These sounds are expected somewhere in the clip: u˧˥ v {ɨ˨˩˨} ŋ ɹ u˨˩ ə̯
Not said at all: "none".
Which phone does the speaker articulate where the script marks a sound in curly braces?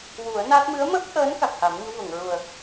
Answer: ə˨˩˨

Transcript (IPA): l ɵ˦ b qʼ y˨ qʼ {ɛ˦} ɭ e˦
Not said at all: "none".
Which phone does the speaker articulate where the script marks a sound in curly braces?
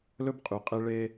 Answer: e˦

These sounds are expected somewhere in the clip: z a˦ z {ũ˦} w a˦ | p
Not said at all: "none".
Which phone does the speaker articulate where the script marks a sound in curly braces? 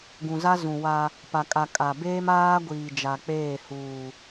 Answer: ũ˨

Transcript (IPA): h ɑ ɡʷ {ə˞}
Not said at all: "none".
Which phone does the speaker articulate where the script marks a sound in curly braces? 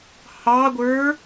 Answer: ə˞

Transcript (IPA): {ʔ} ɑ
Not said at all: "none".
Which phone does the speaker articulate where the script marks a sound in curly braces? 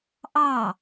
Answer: ʔ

